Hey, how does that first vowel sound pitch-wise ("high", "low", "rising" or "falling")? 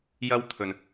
high